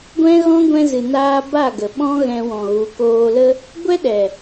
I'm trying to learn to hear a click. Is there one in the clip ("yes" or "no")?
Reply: no